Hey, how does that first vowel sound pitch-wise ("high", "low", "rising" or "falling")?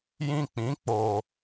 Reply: high